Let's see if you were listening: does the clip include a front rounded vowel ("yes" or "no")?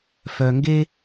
yes